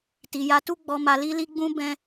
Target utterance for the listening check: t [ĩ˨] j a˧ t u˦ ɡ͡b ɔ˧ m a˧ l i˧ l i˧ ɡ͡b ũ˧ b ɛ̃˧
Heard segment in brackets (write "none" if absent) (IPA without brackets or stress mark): i˨